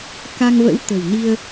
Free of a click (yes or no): yes